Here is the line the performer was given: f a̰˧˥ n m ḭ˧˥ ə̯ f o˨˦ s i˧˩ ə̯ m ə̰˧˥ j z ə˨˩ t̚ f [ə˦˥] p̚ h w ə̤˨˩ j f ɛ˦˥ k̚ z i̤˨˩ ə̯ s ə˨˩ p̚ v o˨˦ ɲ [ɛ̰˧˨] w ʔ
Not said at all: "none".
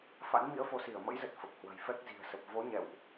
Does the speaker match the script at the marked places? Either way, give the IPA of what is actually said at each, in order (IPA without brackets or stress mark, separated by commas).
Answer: ə˨˩, ɛ̰˧˨